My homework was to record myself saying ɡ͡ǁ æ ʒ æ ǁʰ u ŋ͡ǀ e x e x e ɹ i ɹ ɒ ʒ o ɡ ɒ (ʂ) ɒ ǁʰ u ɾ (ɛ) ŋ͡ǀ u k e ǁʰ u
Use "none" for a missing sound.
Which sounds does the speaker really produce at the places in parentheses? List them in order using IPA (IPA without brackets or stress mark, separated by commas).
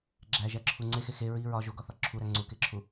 θ, æ